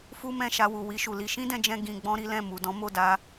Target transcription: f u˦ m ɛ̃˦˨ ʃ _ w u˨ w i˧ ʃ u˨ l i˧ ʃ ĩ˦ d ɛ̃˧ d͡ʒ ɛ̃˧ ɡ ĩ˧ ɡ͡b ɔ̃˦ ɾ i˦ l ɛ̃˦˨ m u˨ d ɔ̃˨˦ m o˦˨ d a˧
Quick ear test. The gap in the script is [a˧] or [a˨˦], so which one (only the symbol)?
a˧